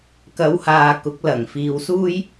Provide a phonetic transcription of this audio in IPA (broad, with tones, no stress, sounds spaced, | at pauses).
k ɐ˨˥ w h aː˨ k ʊ˨˥ k̚ l ɐ˨˩ ŋ f iː˨˧ w s uː˥ j